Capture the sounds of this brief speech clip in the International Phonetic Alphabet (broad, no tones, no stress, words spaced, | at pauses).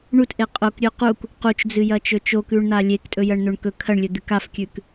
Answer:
ɳutʔe qʼokɾʲʉ quk | qut͡ʃd͡zɨjɐt͡ʃɵ t͡ʃokʉɳn̪a lʲektʼɵjɐɳn̪ɵɳ kɵ kʰɐɳlʲɵd̪ɨk afkʲʉk